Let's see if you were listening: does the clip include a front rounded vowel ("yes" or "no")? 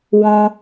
no